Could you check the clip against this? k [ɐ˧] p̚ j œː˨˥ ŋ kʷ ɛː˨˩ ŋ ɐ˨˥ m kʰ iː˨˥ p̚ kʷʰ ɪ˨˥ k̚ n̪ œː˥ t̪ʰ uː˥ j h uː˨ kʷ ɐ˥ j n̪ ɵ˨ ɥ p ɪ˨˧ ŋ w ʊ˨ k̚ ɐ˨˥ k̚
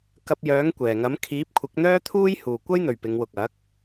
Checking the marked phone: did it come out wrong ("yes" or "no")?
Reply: no